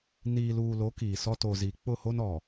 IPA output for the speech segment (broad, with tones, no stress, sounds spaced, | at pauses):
n iː˨ l uː˨ l o˨˦ k iː˨ s ɔ˦ t o˨ z i˨ k͡p ʊ˦˨ h o˦ n ɔ˨